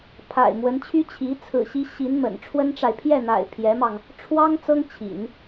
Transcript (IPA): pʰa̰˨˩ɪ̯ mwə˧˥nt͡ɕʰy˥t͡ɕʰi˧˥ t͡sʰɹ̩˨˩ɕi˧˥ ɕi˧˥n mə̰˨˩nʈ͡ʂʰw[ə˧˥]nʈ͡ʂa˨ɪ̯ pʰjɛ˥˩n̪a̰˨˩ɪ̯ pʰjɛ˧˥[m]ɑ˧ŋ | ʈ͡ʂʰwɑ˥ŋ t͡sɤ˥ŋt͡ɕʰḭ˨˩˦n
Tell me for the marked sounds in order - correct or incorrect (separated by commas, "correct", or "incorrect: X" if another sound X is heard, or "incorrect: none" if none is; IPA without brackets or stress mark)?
incorrect: ə˥, correct